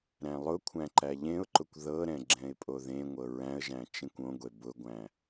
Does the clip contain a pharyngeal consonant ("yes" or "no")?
no